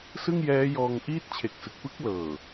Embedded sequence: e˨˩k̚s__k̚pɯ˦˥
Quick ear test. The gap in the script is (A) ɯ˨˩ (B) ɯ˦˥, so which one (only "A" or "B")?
A